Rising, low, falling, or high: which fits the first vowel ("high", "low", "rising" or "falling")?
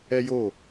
high